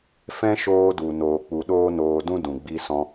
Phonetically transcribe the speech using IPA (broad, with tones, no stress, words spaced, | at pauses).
fɛ̃˦ʃoː˧du˨ noː˨k͡pu˨ ɗoː˦noː˧dũ˦ dũ˨ɡ͡bi˧sɔ̃˧